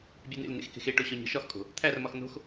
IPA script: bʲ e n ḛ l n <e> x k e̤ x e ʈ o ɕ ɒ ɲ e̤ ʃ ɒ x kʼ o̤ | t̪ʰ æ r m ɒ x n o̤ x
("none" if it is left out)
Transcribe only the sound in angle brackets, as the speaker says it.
ḛ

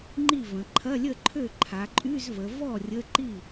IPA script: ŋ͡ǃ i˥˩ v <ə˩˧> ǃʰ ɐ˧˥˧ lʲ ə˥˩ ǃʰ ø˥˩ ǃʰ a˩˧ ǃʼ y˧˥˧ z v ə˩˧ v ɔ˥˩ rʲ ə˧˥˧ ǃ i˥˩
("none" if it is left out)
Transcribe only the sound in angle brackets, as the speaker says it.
ə̃˩˧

